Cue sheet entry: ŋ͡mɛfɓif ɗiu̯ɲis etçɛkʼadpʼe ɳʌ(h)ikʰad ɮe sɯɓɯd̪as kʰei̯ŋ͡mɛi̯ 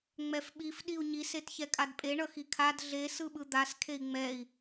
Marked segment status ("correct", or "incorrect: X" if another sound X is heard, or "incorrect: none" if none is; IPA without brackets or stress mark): incorrect: x